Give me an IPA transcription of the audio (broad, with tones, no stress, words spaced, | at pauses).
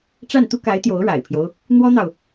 ʈ͡ʂa˥˩nt̪u˥ ka˧˥ɪ̯ t̪jo˧˥ʊ̯ɻa̰˨˩ɪ̯pʰjo˦ʊ̯ | n̪wɔ˥n̪ɑ˨ʊ̯